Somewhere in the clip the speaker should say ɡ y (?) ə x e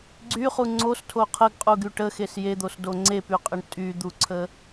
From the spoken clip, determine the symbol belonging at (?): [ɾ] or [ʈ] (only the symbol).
ʈ